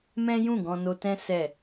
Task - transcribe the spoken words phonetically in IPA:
m ɛ̃˦ j ũ˦˨ ɡ ɔ̃˧ n o˧ t ɛ̃˦ s ɛ˦˨

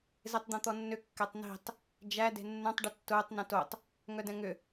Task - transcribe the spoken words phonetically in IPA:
z e tˤ d̪ õ t̪ ɔ nː ʏ kː ɛ tˤ n i̤ tˤ | d͡ʒ æ d e̤ nː œ̃ tˤ ɖ ʏ tː ʊː tˤ n ɛ̃ t o tˤ | ŋ œ d ɛ̃ ŋ ʏ

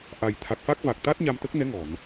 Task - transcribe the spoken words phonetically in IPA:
ʔ a˨˩ j t̪ʰ a˨˩ k̚ f a˦˥ k̚ v a˨˩ k̚ t̪ a˦˥ t̚ ɲ a˧ m t̪ ə˦˥ k̚ n ɛ˧˥ ŋ ɔ˨˩˨ n

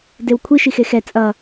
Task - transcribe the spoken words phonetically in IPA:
d e w kʷʰ i ʃ i x e x ɛ t͡sʼ ʌ

